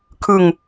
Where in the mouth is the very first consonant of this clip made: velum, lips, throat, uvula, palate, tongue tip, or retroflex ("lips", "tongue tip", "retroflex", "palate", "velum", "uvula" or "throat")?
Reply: velum